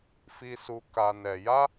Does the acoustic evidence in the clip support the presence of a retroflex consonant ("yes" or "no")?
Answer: no